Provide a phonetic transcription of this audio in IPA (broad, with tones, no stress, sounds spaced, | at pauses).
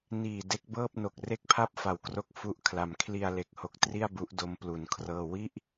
n iː˨˩ d e˦˥ k̚ b ɤː˥˩ p̚ n o˨˩ k̚ r e˥˩ k̚ pʰ a˥˩ p̚ f a˨˩ w k r o˥˩ k̚ f u˥˩ ʔ kʰ l a˧ m kʰ l i˧ a̯ l e˦˥ k̚ h o˦˥ k̚ t r i˥˩ a̯ b u˦˥ ʔ d o˦˥ m p l u˧ n kʰ r ɤː˥˩ w i˥˩ ʔ